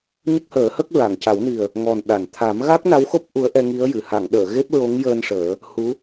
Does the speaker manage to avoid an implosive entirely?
no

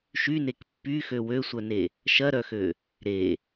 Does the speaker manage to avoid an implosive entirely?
yes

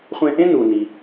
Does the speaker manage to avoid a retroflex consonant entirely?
yes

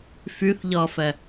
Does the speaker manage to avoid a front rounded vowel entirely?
no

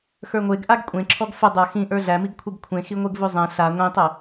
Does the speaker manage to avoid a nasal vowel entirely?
no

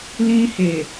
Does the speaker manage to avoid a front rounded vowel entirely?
yes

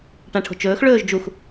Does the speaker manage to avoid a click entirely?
yes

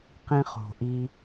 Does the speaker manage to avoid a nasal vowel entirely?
no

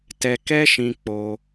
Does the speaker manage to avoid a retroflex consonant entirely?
yes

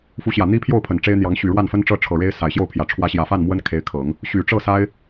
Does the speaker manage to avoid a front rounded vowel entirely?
no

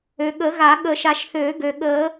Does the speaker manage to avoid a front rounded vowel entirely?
no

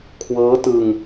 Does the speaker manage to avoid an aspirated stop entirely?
no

